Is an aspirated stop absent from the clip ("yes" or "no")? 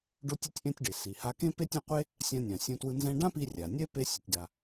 yes